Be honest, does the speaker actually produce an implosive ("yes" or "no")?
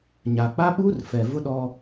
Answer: yes